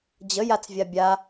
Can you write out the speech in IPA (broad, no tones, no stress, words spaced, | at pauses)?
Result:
d͡ʑəjat͡svʲa bʲa